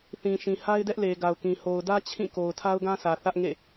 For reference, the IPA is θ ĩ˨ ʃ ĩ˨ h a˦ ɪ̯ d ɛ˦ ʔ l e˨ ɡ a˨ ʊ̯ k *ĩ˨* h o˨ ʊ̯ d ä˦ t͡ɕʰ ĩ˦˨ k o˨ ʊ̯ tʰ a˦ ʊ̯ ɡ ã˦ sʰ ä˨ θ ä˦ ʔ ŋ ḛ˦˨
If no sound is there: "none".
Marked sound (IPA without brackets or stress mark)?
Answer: ĩ˨